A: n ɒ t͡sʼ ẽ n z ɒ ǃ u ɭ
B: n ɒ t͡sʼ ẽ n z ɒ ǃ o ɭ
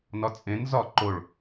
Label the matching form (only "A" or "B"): B